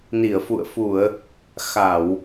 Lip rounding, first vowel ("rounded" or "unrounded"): unrounded